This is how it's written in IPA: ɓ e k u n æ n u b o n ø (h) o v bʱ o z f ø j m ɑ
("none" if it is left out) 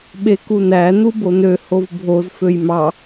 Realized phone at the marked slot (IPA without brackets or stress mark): h